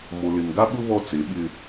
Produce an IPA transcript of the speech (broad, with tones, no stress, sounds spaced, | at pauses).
m o˨ l ɪ˨ n ɡ a˦ ɓ ʊ˦ β ɔ˦ t͡s e˨˦ ɓ ɪ˦